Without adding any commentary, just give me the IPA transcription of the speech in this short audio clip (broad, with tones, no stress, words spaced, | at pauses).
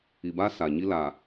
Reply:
i˨baː˦ sa˨ɲi˦ laː˨